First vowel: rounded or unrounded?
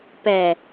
unrounded